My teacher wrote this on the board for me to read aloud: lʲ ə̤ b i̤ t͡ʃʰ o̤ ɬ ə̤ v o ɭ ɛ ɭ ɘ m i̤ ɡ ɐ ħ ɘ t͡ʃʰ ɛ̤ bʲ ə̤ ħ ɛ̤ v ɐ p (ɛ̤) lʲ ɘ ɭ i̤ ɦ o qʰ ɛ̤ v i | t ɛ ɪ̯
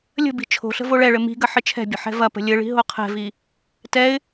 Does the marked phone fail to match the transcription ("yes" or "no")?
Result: yes